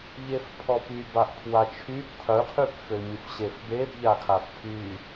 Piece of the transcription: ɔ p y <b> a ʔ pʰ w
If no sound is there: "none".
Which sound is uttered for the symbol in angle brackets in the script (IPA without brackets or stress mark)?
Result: b